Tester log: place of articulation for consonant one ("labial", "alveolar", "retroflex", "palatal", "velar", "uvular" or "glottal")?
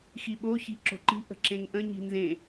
velar